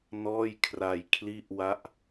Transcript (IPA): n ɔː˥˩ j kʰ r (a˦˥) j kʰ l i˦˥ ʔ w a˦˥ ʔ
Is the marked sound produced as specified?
no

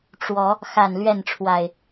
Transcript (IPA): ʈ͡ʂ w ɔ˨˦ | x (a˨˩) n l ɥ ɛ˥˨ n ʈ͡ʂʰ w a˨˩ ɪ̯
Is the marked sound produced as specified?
yes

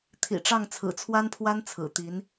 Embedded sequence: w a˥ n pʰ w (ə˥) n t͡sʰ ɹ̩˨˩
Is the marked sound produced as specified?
no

